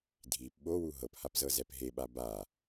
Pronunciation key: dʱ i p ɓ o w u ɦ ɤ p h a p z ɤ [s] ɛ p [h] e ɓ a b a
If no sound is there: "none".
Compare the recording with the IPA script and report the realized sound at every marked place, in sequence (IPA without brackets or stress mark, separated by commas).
z, ɦ